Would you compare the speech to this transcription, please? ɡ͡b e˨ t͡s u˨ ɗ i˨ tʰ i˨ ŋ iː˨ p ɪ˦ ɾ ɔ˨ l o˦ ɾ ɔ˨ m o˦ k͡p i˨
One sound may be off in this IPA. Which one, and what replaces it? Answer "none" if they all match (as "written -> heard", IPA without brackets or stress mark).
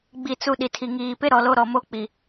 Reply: e˨ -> i˨